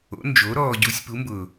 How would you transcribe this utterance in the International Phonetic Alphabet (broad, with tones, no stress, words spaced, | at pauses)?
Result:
o̰˨˥nd͡ʒo˨˥ɾɔː˧ ɟu˨˥sʲpu˨˥mbʊ˨˩